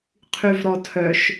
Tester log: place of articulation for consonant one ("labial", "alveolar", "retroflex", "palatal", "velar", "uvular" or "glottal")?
uvular